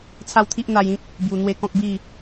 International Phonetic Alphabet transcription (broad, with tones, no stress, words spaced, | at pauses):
t͡sʰa˥˧wt̪ʰi˦ʔn̪a˧jĩ˦k̚ | bju˨˩n̪we˧ kɔ̃˦k̚ bi˥˧